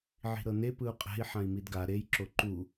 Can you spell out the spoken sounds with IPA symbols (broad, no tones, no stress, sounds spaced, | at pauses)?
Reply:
ʕ i̤ ɾ ɤ n e p ɯ u̯ qʼ ɛ̤ i̯ ħ ã i̯ m i d ɡ a ɾ e j ǁ o ǃ u